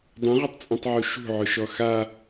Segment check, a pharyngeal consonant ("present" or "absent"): present